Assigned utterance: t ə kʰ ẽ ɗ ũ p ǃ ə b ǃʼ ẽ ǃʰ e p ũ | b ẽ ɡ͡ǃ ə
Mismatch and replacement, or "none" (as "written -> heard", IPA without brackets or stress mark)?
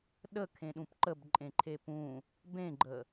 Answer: t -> ɗ